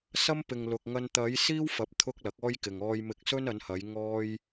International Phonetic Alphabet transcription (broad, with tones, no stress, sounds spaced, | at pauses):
s ɐ˥ m p ɪ˨ ŋ l ʊ˨ k̚ ŋ ɐ˧ n t̪ ɐ˨˧ j s iː˥ w f ɐ˨˥ p̚ t̪ʰ ʊ˥ k̚ l ɐ˨˥ k̚ ɔː˥ j k ɪ˨ ŋ ɔː˧ j m ɪ˧ k̚ s ɵ˥ n ɐ˨˧ n h ɐ˨˧ j ŋ ɔː˥ j